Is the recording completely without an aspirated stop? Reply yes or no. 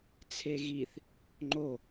no